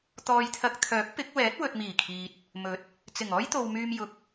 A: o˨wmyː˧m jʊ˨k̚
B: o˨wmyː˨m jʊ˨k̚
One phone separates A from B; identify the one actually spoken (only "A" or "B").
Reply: A